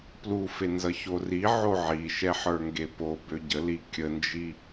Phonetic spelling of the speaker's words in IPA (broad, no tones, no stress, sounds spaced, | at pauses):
p l u f e n z ʌ ç o r i ʕ o ʕ i ʃ ɛ ħ ə˞ ŋ ɡ e p o b ø ɟ ə l i kʲ ə n d͡ʒ i